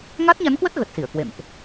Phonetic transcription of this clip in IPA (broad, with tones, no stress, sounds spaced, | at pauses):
ŋ a˦˥ t̚ ɲ a˨˦ n k w ə˦˥ t̚ ɣ ə˨˩ t̚ s i˧˩ ə̯ k w ḛ˧˨ m ʔ